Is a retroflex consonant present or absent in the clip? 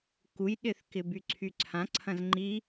absent